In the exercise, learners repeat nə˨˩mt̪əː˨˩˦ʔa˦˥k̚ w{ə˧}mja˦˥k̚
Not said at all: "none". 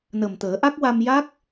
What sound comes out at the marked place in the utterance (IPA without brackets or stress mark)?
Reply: a˧